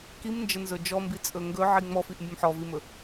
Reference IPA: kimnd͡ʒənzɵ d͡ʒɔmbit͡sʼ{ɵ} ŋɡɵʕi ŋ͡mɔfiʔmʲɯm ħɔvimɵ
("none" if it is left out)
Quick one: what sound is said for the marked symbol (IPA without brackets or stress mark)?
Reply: ɵ